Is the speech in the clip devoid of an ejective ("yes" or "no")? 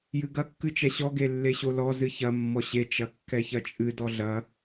no